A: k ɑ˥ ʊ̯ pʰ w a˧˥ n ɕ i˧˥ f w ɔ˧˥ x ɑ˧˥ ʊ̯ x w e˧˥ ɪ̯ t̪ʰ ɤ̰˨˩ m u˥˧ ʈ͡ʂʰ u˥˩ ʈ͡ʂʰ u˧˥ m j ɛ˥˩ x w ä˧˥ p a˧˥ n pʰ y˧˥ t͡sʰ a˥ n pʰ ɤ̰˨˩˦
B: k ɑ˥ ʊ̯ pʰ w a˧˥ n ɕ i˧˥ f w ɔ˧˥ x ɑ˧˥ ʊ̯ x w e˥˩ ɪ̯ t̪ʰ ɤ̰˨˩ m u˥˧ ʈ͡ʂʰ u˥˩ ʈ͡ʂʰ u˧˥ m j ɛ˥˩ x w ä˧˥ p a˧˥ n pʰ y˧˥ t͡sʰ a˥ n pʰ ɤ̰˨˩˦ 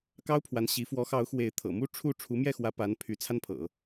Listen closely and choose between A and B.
A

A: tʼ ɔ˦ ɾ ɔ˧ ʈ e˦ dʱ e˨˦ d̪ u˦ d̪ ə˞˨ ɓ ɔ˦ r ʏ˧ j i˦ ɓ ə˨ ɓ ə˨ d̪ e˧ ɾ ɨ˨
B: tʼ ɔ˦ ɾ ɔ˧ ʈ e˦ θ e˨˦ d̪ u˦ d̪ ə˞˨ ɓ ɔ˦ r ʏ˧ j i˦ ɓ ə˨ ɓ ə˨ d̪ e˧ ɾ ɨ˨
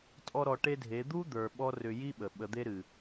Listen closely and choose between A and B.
A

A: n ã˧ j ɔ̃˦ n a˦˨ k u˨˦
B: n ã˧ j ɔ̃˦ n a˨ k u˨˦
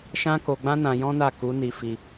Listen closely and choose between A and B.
A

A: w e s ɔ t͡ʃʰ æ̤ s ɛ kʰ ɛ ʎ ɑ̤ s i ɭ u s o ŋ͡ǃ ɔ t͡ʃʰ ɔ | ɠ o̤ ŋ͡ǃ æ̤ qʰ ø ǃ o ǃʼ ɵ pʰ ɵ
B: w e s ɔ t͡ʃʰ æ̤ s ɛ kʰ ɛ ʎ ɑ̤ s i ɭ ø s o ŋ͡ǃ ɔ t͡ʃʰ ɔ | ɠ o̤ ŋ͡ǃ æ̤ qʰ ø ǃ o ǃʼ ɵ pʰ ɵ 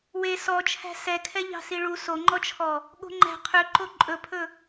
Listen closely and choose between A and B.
A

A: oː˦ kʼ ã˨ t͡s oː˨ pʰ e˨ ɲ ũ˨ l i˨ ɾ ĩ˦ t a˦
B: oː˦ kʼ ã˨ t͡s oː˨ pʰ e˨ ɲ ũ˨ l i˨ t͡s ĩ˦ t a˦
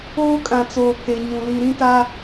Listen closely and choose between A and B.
A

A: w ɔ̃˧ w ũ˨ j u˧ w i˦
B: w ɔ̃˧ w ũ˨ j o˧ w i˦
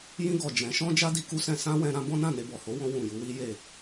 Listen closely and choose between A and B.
A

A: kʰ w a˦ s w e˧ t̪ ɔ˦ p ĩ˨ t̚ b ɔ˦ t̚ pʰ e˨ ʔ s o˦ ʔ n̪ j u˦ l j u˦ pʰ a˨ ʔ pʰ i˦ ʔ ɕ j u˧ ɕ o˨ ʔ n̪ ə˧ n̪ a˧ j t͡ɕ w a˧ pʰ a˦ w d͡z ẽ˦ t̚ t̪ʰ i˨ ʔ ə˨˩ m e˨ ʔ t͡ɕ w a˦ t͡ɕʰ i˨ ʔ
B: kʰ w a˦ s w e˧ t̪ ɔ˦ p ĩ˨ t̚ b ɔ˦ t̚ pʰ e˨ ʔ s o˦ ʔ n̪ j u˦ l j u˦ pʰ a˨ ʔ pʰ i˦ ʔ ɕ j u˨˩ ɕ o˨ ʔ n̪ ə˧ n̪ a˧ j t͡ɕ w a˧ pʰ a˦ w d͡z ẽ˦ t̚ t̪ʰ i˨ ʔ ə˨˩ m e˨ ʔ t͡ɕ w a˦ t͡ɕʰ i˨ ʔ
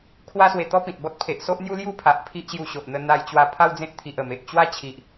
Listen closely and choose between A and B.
A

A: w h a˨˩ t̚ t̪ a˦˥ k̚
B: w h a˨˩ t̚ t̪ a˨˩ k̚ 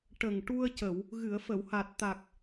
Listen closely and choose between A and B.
B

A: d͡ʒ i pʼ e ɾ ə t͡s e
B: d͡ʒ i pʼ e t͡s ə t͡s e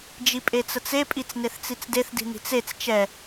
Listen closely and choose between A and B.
B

